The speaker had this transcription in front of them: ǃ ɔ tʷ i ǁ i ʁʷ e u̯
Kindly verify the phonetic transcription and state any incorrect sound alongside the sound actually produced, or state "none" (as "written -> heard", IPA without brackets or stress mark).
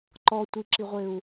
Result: none